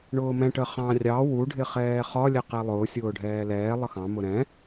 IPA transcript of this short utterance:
ɳ ʊː m ɛ̃ ʈ ə χ ɑ̃ rʲ ɑ w u ɖʱ ɪ χ ɛː χ ɒ lʲ ɛ q ɛ lˠ ʊː sʲ ʊː ɖʱ ɛː l ɛː lˠ ə x ɑ̃ m ʊ ɾ ɛ̃

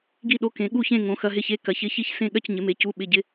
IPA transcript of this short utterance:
ɡ i˥˧ ɗ o˧˥˧ k ẽ˨˥ ɠ u˥˧ ç ẽ˥˧ ŋ õ˨˥ x ɐ˧˥˧ ɦ ɪ˥˧ ç e˧˥˧ k ɐ˨˥ ç ɪ˧˥˧ ç i˥˧ ç s ẽ˥˧ ɠ ɐ˥˧ c ɲ ɪ˨˥ m e˨˥ c u˧˥˧ ɓ ɪ˧˥˧ ɟ ɪ˧˥˧

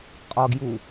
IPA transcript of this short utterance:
qʼ ɒ ɡ j u

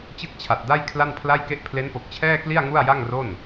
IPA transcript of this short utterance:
t͡ɕ ɯ˥˩ k̚ t͡ɕʰ a˨˩ t̚ d a˥˩ j kʰ l a˥˩ n pʰ l a˥˩ j k e˥˩ ʔ pʰ l e˦˥ n p o˨˩ k̚ t͡ɕʰ ɛː˥˩ k l i˥˩ a̯ ŋ u˥˩ a̯ j a˥˩ ŋ r o˥˩ n

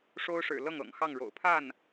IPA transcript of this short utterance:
ʂ o˥ ʊ̯ ʂ ɻ̩˨˩ l ɤ˥˩ ŋ ɤ̰˨˩ ŋ x ɑ˥˩ ŋ ɻ o̰˨˩ ʊ̯ pʰ a˥˩ n

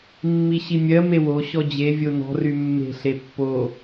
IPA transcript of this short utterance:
mː i ɕ i mʲ ɜ m e w o ɕ ɔ d͡ʑ e vʲ o n ɔ̤ r y mː e̤ ɬ e pː o

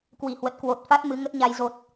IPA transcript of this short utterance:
k w i˧˩ h w ə˨˩ t̚ k w o˨˩ t̚ f a˦˥ t̚ m ɨ˨˦ ŋ ə˦˥ t̚ ɲ a˧ j z o˨˩ t̚

